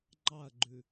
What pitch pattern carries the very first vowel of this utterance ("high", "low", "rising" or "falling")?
falling